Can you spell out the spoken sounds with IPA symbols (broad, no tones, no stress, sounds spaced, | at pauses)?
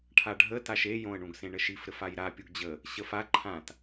ʈʰ a ɖʱ ə t a ʃ e j õ ə̯ ɳ ũ ɡ s ẽ ɳ ə ʃ i f ɾ ɘ f a j ɾ a pʲ u ɡ d͡ʑ ə | ɕ ə f a ǃʰ ã t